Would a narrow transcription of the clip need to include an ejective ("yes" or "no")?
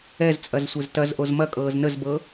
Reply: yes